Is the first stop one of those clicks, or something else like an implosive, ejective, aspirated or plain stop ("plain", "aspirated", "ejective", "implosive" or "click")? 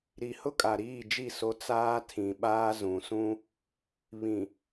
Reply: ejective